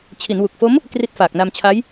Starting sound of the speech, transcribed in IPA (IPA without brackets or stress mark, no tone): t͡ɕʰ